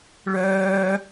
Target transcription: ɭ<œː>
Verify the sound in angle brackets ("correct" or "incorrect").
correct